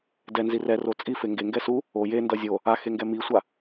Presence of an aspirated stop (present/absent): absent